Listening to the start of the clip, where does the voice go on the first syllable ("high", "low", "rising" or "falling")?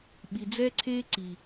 low